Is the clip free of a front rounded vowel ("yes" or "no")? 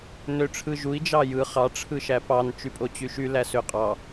no